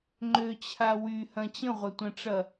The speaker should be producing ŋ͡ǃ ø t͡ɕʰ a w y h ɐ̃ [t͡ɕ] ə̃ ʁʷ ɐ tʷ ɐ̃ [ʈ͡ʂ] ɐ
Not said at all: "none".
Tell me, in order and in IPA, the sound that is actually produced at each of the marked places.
t͡ɕ, ʈ͡ʂ

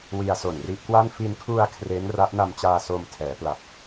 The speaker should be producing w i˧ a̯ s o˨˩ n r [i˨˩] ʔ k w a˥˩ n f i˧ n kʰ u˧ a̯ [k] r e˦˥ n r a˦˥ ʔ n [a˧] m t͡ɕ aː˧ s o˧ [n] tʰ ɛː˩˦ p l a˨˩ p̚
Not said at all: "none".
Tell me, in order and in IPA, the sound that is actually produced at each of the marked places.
i˦˥, kʰ, a˧, m

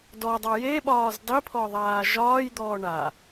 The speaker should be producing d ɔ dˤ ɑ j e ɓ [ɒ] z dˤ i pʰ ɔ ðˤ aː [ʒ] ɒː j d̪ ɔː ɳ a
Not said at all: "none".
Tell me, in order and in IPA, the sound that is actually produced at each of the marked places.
ɒː, ʒ

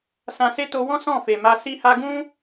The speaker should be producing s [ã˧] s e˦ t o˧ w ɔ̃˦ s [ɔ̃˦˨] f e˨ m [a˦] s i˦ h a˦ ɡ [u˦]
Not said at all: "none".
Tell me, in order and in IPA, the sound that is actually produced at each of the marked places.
ã˧, ɔ̃˦˨, a˧, ũ˦

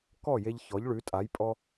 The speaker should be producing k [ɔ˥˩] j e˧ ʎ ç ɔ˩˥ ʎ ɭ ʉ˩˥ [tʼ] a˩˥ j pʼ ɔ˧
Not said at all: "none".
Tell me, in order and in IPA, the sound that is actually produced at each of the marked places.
ɔ˥˩, tʼ

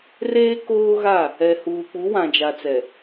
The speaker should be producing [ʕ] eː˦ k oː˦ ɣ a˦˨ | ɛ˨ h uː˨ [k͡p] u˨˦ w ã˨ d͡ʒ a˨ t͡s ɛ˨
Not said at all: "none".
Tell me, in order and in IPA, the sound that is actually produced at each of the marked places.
r, k͡p

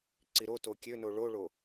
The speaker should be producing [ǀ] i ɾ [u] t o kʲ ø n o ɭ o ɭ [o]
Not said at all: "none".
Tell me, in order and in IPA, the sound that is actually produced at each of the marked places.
ǀ, o, o

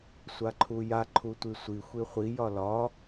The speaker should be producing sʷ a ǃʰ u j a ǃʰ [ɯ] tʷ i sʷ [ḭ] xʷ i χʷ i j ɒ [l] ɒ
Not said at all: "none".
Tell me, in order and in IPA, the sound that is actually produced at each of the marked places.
u, i, l

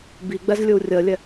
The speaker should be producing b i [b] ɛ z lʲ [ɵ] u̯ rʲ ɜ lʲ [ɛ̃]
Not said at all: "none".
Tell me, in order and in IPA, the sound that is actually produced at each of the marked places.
ɡ͡b, ɵ, ɛ

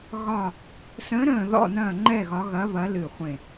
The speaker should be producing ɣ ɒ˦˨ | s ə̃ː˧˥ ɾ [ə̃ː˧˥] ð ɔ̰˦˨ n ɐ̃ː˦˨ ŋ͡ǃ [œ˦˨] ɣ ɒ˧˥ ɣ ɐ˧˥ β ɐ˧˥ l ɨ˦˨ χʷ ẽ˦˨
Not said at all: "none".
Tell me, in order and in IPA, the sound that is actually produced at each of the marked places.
ə̃ː˦˨, ɛ˦˨

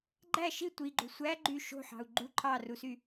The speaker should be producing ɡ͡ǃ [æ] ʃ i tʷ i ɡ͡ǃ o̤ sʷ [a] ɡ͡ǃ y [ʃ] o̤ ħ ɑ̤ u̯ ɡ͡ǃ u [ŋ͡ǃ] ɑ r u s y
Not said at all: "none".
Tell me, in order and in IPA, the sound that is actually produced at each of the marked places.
æ, æ, ʃ, ǃʰ

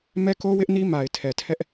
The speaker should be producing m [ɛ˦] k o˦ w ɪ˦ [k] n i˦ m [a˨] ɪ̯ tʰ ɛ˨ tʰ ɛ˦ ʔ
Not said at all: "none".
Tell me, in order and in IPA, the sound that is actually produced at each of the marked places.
ɛ˦, ʔ, a˨

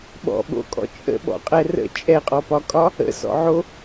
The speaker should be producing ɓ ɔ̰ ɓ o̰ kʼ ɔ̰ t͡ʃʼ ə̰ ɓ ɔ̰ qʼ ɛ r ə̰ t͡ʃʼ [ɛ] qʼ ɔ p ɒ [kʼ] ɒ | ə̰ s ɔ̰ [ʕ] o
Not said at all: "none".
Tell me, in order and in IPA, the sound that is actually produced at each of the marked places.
ɛ, kʼ, ʕ

